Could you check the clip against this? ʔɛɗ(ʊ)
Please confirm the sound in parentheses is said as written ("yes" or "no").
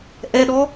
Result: no